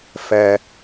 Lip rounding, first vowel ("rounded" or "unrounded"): unrounded